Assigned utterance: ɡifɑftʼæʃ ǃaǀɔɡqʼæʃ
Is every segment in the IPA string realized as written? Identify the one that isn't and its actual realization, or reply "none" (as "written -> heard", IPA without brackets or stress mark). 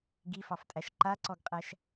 none